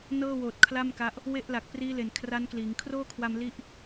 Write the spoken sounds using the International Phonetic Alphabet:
n ɤː˥˩ w oː˨˩ t̚ kʰ l a˥˩ m k a˦˥ ʔ | w e˥˩ ʔ l a˨˩ k̚ p r iː˦˥ l e˨˩ n kʰ r a˦˥ n k l iː˩˦ ŋ kʰ r oː˥˩ kʰ w a˧ m l i˦˥ ʔ

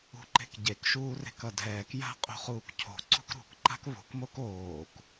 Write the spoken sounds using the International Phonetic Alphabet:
ṳ ǃ e̤ k ɟ e k ʃ uː r e̤ k ʌ dʱ ɛː k j a̤ qʼ o̤ χ uː k cʰ o̤ ǀ ṳ k ɾ ṳ k ǃ a̤ k β o̤ k m o k oː k

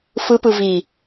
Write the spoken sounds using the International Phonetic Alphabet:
f ɯ p ɯ v i

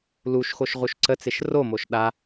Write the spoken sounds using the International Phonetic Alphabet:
l u ʃ x o ʃ ʁ u ʃ ǀ ə t͡s e ʃ r o m o ʃ ɗ a

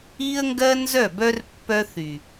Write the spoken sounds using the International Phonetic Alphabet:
i˦ ə̯ ŋ ɡ ɜ˦ n z œ˦˨ b œ˦ r pː œ˦ θ y˨

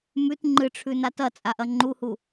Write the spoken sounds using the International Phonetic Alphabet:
m ʉ t ŋ͡ǃ ɨ ʈ͡ʂʰ ʉ n a t ɐ t͡sʼ a ʔ ɐ ŋ͡ǃ u h u

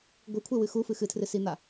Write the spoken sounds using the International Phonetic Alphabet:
ɡʷ ɨ kʷʰ e w ɨ x u f ɨ x ɨ tʰ r ɨ s i n̪ a

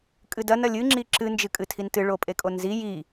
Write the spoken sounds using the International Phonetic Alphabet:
kʼ ɨ d ɐ n ɐ lʲ ɨ ŋ͡ǁ i ǁ ɨ n d͡ʒ ɨ kʼ ɨ tʰ i n t ɨ ɭ o pʼ e kʼ o n z i j i

